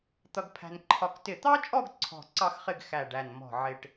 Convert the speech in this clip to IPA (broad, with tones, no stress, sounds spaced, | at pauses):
t̪ ʌ˧ ɡ pʰ æ̤˧ n ǃʰ ɒ˧ k t ɪ˧˩ t̪ ɑ˥ t͡ʃʼ ɔ˥˧ ɡ ǀʰ ɔ̤˧˩ ǀ ɑ˥˧ x χ ɪ˥˧ ɡ x æ˧˩ ɖ æ˧˩ n m ɔ̤˧˩ ʕ ɪ˧ ʈ